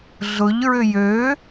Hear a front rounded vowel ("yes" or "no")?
yes